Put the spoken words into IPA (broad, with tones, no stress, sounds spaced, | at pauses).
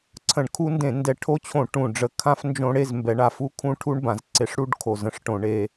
ǀʰ ə̃˧˩˧ ɳ kʰ u˦˥ n d ẽ˧˩˧ n d ɛ˨˦ ʈʰ o˧˥˧ t͡ɕʰ õ˧˩˧ ʈ ũ˨˩ ɖ͡ʐ ə˨˩ kʰ ã˦˥ f n d͡ʒ õ˦˥ ɽ e˧˥˧ z m b ɛ˨˦ ɳ a˨˩ f u˦˥ kʰ ũ˦˥ ʈʰ u˦˥ ɳ b ã˨˩ z ǀ e˨˦ ʂ ɽ u˦˥ ɖ kʰ o˨˩ z ə̃˨˦ ʂ ʈ õ˧˩˧ ɳ e˨˦